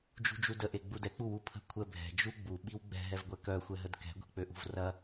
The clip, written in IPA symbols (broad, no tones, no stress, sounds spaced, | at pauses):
d͡ʒ ṳ d͡ʒ u d ə ʔ e ɡ͡b u d ɛ k͡p u w u pʰ ə̤ kʷʰ ɛ bʱ ɛ̤ d͡ʒ u ɡ͡b u ɓ i w ɡ͡b ɛ̤ ɦ ɛ v ɡʷ ɛ k œ xʷ ɛ ɦ ə d k ɛ̤ ɡʷ i̤ k͡p ø ʔ ṳ v r ɐ